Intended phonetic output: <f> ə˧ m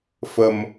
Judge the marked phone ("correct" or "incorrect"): correct